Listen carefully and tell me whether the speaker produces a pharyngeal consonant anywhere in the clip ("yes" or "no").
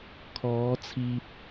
no